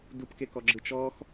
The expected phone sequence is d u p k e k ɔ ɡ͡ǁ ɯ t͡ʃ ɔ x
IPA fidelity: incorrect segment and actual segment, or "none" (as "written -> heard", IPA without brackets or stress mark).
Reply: none